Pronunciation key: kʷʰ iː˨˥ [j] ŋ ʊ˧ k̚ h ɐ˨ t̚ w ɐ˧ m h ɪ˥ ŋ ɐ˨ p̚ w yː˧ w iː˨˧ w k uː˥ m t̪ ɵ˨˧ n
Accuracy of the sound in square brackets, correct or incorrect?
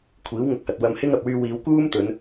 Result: incorrect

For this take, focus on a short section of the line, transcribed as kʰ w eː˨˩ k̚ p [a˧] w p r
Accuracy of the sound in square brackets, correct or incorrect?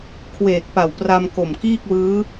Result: incorrect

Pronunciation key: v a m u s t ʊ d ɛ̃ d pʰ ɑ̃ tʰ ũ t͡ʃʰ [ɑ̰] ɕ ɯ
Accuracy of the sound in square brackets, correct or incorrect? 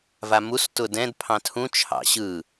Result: correct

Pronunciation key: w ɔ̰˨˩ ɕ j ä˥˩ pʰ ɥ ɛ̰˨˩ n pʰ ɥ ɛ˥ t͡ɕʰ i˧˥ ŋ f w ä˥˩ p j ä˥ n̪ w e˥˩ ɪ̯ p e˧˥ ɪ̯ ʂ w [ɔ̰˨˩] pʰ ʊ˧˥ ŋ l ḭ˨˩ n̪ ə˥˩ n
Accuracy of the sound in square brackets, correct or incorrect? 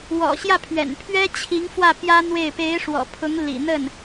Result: correct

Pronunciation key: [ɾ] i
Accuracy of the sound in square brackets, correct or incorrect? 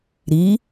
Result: correct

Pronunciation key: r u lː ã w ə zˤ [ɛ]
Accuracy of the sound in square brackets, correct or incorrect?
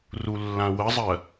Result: incorrect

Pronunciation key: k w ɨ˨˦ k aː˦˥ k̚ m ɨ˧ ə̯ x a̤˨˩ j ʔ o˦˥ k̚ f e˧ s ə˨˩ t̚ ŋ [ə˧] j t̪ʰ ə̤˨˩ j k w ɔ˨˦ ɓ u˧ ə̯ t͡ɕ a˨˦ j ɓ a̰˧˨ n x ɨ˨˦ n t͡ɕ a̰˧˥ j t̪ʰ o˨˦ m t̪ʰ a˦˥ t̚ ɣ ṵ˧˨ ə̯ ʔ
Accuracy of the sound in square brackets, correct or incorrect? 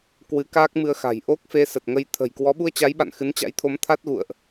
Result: correct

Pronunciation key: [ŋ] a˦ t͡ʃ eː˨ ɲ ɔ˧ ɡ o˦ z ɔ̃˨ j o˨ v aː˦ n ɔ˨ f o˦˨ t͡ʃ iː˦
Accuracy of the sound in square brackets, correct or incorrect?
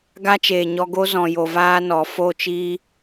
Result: incorrect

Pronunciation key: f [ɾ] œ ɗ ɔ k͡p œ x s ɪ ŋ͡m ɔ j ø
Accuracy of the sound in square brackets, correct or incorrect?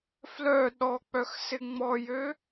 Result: incorrect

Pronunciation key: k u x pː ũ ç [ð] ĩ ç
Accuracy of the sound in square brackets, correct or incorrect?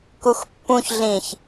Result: incorrect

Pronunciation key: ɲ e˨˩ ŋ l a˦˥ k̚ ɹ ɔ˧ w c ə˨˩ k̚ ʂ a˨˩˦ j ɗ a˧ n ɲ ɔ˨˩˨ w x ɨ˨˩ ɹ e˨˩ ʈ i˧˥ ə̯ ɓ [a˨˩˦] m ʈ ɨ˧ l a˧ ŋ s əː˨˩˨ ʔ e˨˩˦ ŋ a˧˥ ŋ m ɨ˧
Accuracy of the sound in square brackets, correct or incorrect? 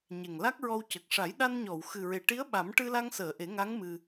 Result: correct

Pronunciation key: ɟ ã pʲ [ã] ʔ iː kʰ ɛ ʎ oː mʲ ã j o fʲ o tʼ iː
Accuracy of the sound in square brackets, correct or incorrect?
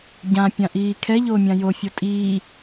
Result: correct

